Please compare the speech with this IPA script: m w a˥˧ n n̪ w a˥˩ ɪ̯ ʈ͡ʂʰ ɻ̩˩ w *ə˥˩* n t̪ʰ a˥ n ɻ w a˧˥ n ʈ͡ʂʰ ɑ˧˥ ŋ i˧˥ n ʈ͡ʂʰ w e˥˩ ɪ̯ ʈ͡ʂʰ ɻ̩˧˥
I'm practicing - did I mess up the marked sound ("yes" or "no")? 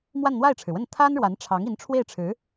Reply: no